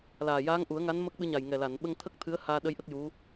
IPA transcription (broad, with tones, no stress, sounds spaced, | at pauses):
l aː˨˩ j aː˧˥ ŋ ʔ u˨˩˦ ə̯ ŋ a˧˥ n m ə˦˥ k̚ ɓ ɨ˧˥ ɲ a˨˩ j ŋ ɛ˨˩ l a˨˩˨ n ɓ ə˧ ŋ t̪ʰ ə˦˥ k̚ t̪ʰ ɨ˧˥ ə̯ h aː˧ ɗ ə˧˥ j ʔ ə˦˥ k̚ j u˧˥